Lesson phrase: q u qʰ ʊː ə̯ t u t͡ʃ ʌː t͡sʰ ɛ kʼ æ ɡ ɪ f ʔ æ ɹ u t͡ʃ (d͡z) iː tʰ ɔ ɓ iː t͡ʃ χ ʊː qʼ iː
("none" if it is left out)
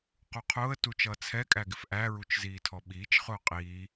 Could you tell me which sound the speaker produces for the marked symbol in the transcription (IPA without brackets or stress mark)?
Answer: z